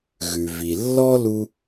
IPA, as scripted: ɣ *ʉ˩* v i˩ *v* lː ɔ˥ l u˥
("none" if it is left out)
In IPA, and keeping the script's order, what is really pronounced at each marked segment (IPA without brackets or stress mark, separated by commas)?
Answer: ʉ˩, none